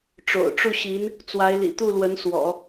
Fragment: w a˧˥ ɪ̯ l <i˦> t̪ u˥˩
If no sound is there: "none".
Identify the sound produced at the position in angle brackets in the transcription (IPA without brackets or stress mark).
ḭ˨˩